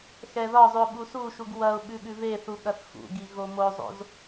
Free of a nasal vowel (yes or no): yes